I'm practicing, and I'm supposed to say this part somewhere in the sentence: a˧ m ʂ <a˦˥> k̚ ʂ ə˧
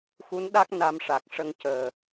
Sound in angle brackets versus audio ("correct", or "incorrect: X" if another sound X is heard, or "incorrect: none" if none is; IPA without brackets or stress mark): incorrect: a˨˩